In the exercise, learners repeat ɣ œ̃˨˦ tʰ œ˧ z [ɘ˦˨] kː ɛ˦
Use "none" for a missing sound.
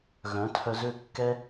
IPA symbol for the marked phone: ø˦˨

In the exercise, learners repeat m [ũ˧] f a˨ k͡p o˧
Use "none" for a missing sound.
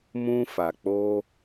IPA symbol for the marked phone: ũ˧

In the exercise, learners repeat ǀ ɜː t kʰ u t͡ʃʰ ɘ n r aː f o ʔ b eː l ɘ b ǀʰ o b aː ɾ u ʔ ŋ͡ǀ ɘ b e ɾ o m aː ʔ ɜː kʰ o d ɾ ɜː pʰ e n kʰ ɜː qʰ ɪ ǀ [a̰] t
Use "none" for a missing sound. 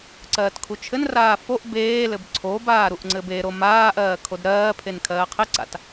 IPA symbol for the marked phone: a̰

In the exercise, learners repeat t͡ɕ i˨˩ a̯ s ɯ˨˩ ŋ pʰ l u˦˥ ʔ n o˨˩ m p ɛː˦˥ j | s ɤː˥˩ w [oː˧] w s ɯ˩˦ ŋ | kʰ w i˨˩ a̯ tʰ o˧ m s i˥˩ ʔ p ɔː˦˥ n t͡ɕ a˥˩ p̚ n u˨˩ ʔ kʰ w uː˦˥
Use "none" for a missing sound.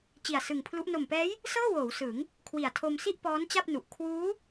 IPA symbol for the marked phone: oː˩˦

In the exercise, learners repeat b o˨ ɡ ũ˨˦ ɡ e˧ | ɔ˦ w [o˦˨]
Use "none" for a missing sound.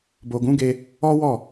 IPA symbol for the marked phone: ɔ˦˨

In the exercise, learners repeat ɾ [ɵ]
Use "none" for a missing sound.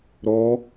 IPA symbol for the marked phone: ɔ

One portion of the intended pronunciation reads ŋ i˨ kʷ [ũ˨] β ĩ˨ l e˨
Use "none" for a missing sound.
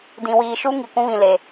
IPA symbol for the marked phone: ũ˦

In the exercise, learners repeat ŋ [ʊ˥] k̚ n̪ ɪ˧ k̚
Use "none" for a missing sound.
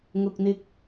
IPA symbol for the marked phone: ʊ˨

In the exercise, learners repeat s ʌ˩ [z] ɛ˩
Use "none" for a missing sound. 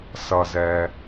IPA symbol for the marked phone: z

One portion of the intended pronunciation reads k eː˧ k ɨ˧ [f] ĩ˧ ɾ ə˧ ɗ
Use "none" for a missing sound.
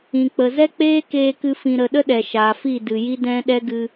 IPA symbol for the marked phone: f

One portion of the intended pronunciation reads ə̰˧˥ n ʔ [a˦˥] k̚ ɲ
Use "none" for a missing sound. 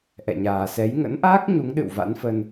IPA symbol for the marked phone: aː˦˥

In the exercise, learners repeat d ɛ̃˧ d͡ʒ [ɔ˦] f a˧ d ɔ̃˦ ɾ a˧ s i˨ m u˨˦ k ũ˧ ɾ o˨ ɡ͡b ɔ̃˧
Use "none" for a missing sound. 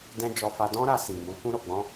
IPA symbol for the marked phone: ɔ˧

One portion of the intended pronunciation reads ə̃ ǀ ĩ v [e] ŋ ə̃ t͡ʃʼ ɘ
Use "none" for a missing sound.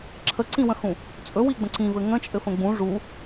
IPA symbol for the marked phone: ɘ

